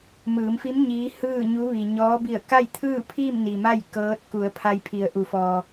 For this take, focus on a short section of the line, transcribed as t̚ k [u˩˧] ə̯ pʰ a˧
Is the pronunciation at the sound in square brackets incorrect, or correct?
correct